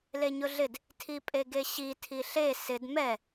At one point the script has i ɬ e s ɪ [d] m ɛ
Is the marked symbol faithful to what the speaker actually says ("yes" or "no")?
yes